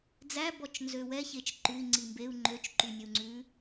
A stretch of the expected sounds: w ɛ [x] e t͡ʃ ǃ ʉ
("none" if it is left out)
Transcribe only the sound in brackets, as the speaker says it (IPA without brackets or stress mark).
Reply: ç